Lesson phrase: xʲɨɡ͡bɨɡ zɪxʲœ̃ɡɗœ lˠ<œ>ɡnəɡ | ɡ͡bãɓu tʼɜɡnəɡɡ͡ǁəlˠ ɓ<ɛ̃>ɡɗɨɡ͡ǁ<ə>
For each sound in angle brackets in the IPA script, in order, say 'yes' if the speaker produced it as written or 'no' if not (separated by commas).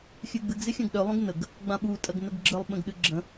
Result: no, no, no